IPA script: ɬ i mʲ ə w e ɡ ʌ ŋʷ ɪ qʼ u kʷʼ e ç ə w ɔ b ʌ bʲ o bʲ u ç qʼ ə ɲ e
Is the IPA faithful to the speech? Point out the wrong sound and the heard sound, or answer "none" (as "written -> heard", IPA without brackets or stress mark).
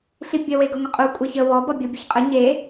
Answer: mʲ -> bʲ